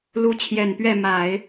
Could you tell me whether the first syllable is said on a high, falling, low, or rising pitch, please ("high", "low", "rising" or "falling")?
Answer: rising